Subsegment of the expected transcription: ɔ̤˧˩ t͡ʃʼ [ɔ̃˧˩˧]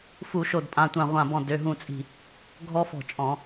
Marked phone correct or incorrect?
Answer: correct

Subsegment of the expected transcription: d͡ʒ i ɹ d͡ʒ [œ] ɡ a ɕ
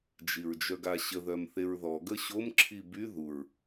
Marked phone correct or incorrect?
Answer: correct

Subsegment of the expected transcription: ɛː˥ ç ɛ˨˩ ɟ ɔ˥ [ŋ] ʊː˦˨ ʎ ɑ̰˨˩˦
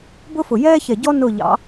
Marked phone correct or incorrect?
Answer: incorrect: n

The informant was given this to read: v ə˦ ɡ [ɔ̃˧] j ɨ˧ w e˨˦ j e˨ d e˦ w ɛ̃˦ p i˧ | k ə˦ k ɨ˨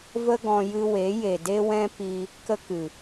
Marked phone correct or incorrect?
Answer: correct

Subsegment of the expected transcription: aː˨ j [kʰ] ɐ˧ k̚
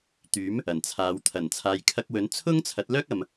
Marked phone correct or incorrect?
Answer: correct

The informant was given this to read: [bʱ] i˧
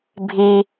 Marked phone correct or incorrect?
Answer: correct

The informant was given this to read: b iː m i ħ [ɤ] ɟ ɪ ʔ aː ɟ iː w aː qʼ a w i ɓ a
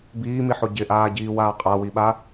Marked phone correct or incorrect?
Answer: incorrect: o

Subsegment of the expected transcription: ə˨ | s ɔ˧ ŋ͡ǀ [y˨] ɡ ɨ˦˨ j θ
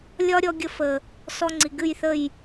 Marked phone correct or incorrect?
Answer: incorrect: i˨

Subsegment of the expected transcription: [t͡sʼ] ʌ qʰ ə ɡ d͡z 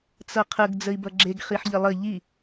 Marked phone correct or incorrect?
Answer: incorrect: t͡s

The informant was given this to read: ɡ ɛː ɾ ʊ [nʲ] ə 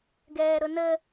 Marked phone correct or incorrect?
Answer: incorrect: n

